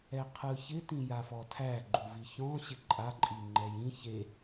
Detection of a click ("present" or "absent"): present